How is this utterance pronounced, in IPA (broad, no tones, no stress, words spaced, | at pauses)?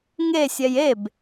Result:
ŋesʲɛj eb